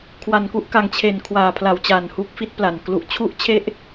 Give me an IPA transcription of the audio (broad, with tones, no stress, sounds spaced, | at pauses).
kʰ w a˨˩ n k u˥˩ ʔ k a˨˩ ŋ t͡ɕʰ e˨˩ n kʰ w aː˨˩ pʰ l a˨˩ w t͡ɕ a˨˩ n h u˦˥ k̚ f i˦˥ t̚ p l a˨˩ n k l u˨˩ ʔ t͡ɕʰ u˥˩ ʔ t͡ɕʰ e˥˩ ʔ